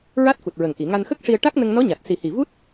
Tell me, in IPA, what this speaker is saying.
ɹ a˦˥ t̚ f u˨˩ t̚ ɹ ə˨˩ ŋ ʔ i˨˩˨ ŋ a˧ n x ə˦˥ k̚ ʂ i˧ ə̯ ʈ a˦˥ k̚ n ə˧ ŋ n ɔ˧˥ ɲ a˨˩ t̚ s i˨˩ h i˨˩ v u˦˥ t̚

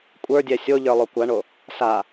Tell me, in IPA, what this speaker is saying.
kʷʼ ə˞ dʲ ɛ sʲ o ʎ ə˞ lˠ o kʷ a ɳ o | s a

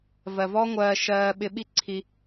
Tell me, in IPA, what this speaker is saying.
v ɜ˨ v ɔ˦ ŋʷ ɜː˧ ʃ ɜː˧ ɓ ɪ˧ ɓ i˦ ǀʰ i˧

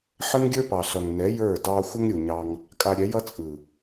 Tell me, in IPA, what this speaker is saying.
ħ ə˦ ŋ ɡʲ ə˞˦ p ɑ˨ ɬ ʌ˨ ŋ n ɛ˨˦ j ə˞˦˨ d ɑ˧ xʷ ə˧ ŋ ɾʲ u˨ ɲ ɑ˧ ŋ | kʼ a˧ ɾʲ ɛ˨˦ j ʌ˦ t͡sʼ ɯ˨

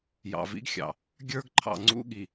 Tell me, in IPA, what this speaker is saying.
j ɑ̰˨ v ḭ˦ ɡ xʲ ɑ̰˨ | ɡʲ ə˞˦ ɡ ǃʰ ɑ̰˨ ŋ͡ǀ ṵ˦ ɠ i˨

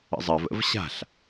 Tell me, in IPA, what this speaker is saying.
ə̰ zˤ ɜ v ə̰ v ɕ a̤ ɬ

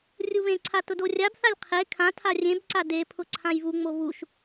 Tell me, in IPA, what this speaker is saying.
rʲ u β ẽ ǀʰ a t ʊ d o rʲ a b θ a lʲ qʰ e kʰ ã tʰ a rʲ ẽ b ǀ a d e pʰ ʊ ǀʰ ã j β u ŋ͡m o β u ʃ

